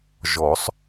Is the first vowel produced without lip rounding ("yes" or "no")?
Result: no